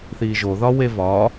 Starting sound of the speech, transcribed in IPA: θ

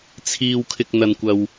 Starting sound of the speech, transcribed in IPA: t͡sʰ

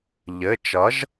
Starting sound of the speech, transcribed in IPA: ʎ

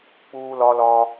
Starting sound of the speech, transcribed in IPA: k͡p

